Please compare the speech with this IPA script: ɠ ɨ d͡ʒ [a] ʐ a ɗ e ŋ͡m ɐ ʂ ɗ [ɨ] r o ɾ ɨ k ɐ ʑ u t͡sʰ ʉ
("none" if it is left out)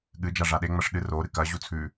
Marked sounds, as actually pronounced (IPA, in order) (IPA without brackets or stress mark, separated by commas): a, ɨ